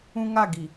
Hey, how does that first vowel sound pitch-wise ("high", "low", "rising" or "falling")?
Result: high